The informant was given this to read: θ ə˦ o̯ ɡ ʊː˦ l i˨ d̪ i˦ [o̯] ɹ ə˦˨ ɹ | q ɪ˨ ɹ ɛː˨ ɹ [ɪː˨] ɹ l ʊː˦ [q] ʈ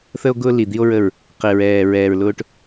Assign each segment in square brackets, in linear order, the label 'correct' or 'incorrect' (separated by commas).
correct, incorrect, incorrect